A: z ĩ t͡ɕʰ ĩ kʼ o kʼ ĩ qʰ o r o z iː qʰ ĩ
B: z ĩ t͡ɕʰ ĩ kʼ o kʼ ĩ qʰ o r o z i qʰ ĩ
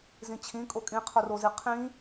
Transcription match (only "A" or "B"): B